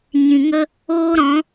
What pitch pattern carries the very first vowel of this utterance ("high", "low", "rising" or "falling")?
low